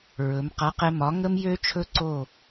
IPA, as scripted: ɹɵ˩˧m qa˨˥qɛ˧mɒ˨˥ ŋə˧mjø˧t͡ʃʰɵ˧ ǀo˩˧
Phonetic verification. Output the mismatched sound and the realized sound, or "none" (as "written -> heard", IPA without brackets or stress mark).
o˩˧ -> o˥˨